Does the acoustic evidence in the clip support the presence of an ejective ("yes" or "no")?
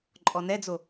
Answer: yes